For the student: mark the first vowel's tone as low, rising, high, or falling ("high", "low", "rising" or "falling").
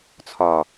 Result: low